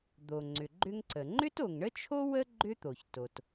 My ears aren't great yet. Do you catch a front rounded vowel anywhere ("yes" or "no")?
yes